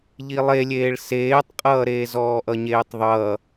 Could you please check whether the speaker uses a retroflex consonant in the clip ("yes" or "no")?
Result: yes